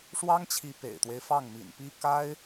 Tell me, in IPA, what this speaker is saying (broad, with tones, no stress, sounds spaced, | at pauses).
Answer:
ʂ w ɑ˥ ŋ t͡ɕʰ i˧˥ p ḛ˨˩ ɪ̯ t̪ w e˦ ɪ̯ f ɑ˥˩ ŋ m ḭ˨˩ n p i˥ k a˥ ɪ̯